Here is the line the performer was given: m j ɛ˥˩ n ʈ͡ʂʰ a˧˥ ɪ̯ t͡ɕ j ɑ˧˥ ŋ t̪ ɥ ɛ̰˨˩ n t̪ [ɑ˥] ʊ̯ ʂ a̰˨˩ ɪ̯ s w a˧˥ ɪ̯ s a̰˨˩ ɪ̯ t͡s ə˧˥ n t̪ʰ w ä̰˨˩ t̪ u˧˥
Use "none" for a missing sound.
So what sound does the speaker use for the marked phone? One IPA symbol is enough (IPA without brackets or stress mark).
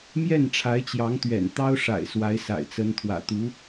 ɑ˥